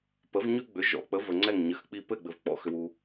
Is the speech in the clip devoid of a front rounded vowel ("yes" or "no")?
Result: no